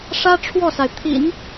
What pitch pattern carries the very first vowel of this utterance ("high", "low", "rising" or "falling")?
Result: high